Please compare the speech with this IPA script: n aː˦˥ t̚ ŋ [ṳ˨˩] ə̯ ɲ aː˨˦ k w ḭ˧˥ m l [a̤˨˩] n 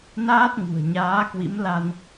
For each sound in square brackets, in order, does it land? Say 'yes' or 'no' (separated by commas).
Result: yes, no